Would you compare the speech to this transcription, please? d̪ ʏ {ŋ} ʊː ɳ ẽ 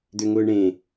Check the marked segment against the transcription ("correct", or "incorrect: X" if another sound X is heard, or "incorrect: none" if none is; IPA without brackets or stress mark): correct